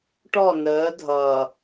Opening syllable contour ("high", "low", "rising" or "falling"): falling